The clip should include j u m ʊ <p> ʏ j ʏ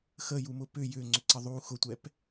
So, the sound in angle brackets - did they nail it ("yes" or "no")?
yes